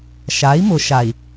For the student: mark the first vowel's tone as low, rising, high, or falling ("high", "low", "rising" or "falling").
rising